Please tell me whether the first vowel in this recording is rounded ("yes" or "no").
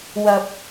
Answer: no